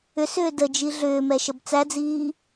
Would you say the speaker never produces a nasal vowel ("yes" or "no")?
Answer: yes